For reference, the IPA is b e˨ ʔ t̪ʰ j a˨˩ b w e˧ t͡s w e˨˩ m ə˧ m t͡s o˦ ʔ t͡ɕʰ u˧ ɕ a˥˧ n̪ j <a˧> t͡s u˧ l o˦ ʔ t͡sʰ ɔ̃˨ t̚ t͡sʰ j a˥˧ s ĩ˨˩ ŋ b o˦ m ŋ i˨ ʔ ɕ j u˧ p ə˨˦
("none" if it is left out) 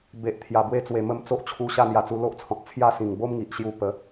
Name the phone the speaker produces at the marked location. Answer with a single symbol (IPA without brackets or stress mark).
a˧